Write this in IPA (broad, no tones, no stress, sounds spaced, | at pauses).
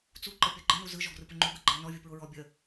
t͡s u ǃ ə pʲ ɔ ɡ͡ǃ ɘ n u z ɯ ʒ ɔ ɡ r ɯ p ə ŋ͡ǃ u ɡ ɯ ɡ͡ǃ ə n ɔ vʲ u p ɹ ʊ ɹ ɔ bʲ ə